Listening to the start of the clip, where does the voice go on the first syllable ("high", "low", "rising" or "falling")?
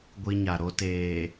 high